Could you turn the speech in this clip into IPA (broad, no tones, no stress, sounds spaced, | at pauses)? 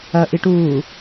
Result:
ɐ ʔ i ʈ uː